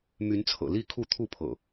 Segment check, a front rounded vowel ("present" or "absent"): present